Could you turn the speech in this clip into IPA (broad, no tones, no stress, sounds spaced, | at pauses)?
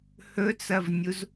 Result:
h ɵ t͡s ɐ v nʲ u z